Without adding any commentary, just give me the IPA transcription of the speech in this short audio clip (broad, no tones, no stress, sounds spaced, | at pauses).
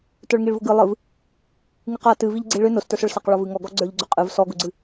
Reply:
t ə˞ ɭ ŋ i ɭ v ʊ ɡ ɨ lˠ ɨ v | ŋ ɨ q a t ɨ v i ʎ ɡ͡ǀ i ɭ ʏ n ʊ s t ə˞ s ʊ ɭ s a q ɭ ɔ v ɨ ŋ ɔ ɡ ɔ ɡ͡ǀ ə˞ ʎ ɡ͡ǀ ʊ qʼ ɨ v s ɔ ɡ ʊ ɡ͡ǀ ɨ